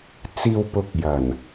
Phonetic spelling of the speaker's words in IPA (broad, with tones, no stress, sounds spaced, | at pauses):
t͡s iː˨ w p ʊ˨˥ k̚ j ɐ˨˩ n